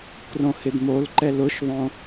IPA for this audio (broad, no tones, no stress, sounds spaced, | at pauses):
k r õ h ɪ d m o l ǃ ɛ l ʊ ʃ ðˤ õ